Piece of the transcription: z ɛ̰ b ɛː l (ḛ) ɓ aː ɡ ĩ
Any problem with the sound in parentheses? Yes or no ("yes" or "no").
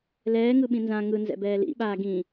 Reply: yes